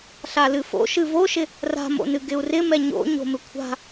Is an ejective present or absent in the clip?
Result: absent